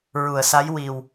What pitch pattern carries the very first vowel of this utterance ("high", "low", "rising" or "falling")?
low